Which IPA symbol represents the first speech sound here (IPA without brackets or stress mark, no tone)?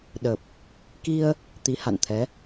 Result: ɗ